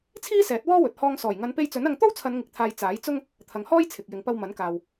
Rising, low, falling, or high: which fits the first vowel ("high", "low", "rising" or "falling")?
high